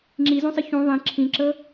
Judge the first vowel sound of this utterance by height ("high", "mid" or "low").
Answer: high